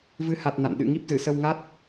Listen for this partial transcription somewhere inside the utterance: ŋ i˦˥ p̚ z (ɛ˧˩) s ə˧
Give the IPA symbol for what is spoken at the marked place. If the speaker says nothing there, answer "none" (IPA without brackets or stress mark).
ɨ˧˩